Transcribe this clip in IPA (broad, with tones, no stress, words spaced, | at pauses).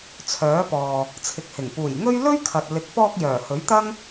t͡sʰœː˨˥pɔː˨ | t͡sʰɪ˨k̚hɪ˨˩ŋ puː˨˩jŋɵ˥ɥ lɵ˥ɥkʰɐ˨t̚ lɪ˨k̚pɔː˧k̚ jœː˨˩hɵ˨˥ɥt̪ɐ˥ŋ